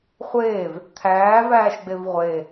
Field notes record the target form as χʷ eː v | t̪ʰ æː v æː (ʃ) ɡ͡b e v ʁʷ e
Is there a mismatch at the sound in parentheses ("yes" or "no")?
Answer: no